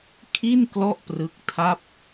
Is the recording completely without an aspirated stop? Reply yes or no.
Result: no